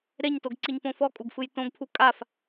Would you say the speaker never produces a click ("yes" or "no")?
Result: no